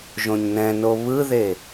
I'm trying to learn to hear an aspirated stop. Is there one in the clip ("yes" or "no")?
no